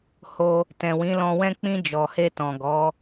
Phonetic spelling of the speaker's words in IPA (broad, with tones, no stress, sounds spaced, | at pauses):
h o˧ | t ɛ̃˨ w ĩ˨˦ l ɔ̃˧ w ɛ̃˦ k͡p ĩ˧ d͡ʒ ɔ˨ h e˧ t ɔ̃˨ ɡ ɔ˨˦